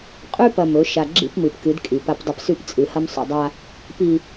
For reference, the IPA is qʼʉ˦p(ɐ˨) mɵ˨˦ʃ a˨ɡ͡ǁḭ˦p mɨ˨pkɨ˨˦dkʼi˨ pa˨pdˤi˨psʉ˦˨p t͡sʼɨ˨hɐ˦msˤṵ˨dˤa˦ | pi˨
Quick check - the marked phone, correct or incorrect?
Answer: correct